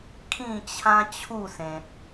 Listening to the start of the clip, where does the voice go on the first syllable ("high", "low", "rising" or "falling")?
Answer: falling